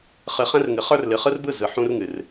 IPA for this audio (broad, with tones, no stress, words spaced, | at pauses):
χɨ˨χɛ̃˦rŋɨ˨ χə˞˦rlɨ˨ χɯ˦rbɯ˦˨zɯ˨ ħũ˦r ŋɨ˨r